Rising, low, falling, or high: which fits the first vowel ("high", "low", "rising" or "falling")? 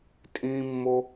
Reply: high